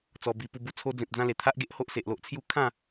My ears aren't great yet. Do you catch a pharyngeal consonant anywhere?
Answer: no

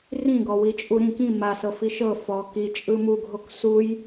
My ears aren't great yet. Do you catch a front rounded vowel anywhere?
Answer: no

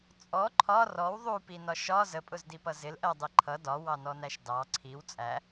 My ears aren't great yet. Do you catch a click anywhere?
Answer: yes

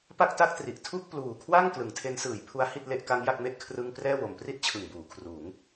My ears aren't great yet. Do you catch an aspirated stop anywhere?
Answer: yes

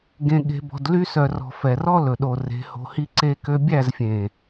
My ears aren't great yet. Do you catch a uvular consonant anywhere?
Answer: no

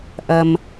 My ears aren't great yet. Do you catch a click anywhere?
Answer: no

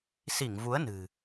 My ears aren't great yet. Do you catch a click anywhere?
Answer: no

